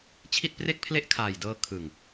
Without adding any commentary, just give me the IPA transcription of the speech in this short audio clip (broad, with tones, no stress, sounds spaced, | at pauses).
t͡ɕʰ i˥˩ t̚ p r e˥˩ k̚ pʰ l e˥˩ ʔ kʰ aː˨˩ j d ɤː˧ kʰ ɯ˨˩ ŋ